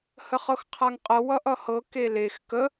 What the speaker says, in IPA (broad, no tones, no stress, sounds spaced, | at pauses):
h ə χ ɤ x qʰ a ŋ qʼ ɤ w ʌ ʔ ʌ h ɤ k e l e x k ə